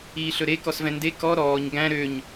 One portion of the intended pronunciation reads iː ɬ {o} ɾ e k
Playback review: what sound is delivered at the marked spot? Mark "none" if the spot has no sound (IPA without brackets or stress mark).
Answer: ɵ